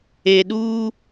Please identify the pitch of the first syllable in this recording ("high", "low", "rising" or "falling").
low